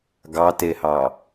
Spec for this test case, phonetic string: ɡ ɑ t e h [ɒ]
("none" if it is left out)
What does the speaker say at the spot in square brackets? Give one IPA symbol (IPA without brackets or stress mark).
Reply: ɑ